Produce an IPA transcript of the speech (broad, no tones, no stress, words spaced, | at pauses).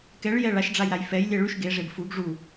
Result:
kɛɭjɛ ɭaʃɖ͡ʐajɾaj fɛjlʲɛ ɭyʃ ɡeʐeb fuɡ ʐu